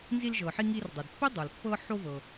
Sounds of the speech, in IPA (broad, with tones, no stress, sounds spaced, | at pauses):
n z i˧ l ʒ ɤ˩ ħ i˧ ŋ i˧ r dˤ ɤ˩ d pː i˥ dˤ ɤ˩ l pː ɤ˧ ħ o˧ v ɤ˩